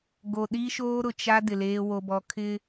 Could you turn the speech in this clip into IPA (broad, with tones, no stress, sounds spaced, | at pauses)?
ɡ o˨ ɗ i˦ ʃ oː˦ ɾ ʊ˨ t͡ʃ a˦ d ɪ˨ l eː˦ w o˦ b ɔ˦ kʰ ɪ˦